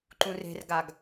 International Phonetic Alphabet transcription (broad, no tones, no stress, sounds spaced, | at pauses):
ǃ ũ r e̤ r ɡ a ɡ